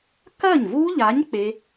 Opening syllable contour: falling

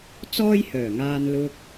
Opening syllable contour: high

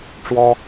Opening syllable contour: high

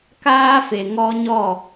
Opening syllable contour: high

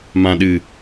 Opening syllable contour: low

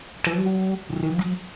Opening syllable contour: rising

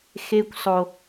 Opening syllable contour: high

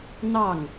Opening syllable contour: falling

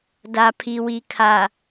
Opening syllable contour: low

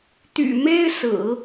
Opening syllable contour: low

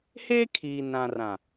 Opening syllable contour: high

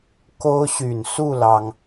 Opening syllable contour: high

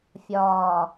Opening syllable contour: low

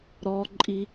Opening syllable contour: low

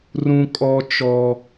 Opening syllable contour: high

